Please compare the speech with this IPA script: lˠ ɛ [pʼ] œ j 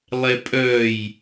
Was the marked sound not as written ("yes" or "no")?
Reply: no